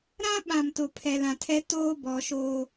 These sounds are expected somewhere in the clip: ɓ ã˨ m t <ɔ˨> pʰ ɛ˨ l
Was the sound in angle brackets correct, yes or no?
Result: no